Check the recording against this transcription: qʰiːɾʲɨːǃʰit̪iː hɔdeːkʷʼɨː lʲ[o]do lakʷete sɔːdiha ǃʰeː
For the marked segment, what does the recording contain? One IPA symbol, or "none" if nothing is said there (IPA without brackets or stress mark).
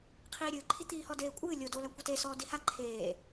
o